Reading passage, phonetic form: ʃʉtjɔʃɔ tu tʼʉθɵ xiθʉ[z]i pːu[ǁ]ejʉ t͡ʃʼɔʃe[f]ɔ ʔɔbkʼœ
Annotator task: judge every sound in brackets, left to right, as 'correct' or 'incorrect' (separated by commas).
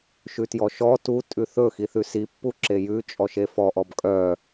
incorrect, correct, correct